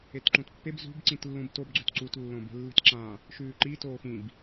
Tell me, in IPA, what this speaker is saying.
e t ǃ ũ t pː e b z ṳ b ǀ ĩ t lː ũ b t o b ɡ͡ǀ ʉ t ǀ u t lː õ b e̤ lː i̤ t ǁ ã | ʃ ʉː ǃ i t oː x ĩ b

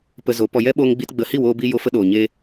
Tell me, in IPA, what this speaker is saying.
p ə˧ z o˨˦ p ɔ˧ j ɛ˦ ɓ oː˧ ŋ ɡ͡b i˧ t ɡ͡b ə˧ h i˦˨ w oː˧ b i˧ j o˧ f ə˧ ɗ oː˨ ɲ eː˧

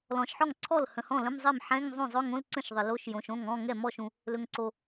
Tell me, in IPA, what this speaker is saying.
l ɔ̃˩ ʃ ħ ɔ˥˩ ŋ ǀʰ ɔ˥˩ l h ə̃˩ h ɔ̃˥˩ l ə̃˧˥˧ m zˤ ɛ˥˩ m ħ ɛ̃˧˥˧ ŋ zˤ õ˥˩ zˤ ɵ˧˥˧ ŋ õ˧˥˧ l ǀ ə̃˥˩ ʃ ðˤ ə˩ l o˧˥˧ ʃ j õ˩ ʃ õ˥˩ ŋ ɔ̃˧˥˧ ŋ ɛ˥˩ m ɔ˥˩ ʃ ũ˩ | l ɵ˩ ŋ ǀ o˩

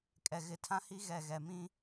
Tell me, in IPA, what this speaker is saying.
kʼ ɛ˨ ɣ ɪ˨ tʰ ã˦ h i˦ ɣ ɛ˨ ɣ ɛ˨ m ĩ˦

